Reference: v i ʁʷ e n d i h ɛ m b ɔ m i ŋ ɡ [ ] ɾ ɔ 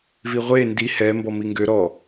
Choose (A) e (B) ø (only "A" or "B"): B